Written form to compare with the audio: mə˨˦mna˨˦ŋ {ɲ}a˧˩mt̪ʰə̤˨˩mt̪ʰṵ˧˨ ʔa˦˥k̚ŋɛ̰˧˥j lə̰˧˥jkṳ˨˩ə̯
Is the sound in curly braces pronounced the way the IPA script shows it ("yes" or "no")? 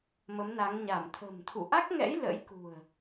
yes